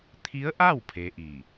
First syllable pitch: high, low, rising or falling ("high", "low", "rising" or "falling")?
rising